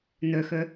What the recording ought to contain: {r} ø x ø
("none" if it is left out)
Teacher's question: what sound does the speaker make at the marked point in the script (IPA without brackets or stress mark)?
n